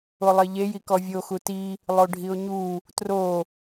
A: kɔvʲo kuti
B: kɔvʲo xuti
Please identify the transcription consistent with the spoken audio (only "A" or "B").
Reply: B